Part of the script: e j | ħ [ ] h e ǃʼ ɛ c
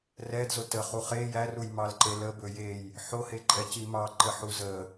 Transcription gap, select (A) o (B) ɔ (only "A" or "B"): A